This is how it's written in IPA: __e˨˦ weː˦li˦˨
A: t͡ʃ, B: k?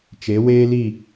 A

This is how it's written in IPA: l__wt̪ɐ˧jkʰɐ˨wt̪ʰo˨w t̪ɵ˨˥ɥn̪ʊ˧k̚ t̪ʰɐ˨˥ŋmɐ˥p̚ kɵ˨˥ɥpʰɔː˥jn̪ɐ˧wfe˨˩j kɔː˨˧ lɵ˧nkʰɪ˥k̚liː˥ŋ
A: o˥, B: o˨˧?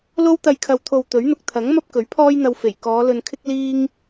A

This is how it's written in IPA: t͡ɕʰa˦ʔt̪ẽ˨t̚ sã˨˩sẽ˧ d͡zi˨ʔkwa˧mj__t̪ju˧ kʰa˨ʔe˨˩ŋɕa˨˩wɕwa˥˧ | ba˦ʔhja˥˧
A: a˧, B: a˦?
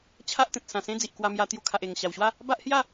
A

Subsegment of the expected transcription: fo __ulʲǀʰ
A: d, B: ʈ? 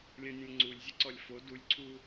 A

